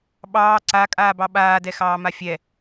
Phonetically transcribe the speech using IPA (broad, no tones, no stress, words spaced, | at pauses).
ɓɑː ǀakʼaːbɑ ɓaːdɛxɑːma fʲɛ